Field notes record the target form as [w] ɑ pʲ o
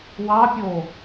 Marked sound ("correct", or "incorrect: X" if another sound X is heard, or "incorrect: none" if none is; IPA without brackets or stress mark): correct